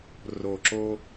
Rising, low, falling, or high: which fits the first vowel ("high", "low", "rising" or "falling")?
low